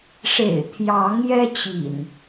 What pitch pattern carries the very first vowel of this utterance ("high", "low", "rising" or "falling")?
low